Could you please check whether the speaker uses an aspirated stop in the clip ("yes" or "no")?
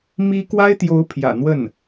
yes